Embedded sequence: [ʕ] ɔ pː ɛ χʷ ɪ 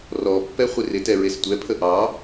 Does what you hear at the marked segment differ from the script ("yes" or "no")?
yes